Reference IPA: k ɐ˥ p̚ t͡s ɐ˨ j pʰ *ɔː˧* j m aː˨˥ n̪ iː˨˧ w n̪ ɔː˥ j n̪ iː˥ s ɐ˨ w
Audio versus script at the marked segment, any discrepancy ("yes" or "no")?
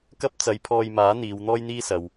no